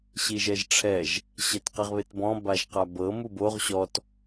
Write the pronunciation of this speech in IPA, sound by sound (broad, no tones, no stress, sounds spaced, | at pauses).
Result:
ɕ i ʒ ɛ ʒ ʈ͡ʂʰ ɛ ʒ | ɕ ɛ t q ɛ ʁ β e t b ɔ̃ b a ʒ q a b ɤ m u b o ʁ ɕ ɔ t